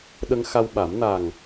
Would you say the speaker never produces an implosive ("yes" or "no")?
no